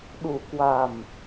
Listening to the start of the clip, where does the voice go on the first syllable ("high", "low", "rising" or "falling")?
low